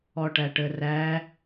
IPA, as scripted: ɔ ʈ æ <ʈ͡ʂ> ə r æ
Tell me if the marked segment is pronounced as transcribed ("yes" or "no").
no